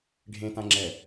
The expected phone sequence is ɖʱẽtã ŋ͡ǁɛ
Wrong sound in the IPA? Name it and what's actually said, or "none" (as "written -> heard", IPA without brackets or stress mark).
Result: none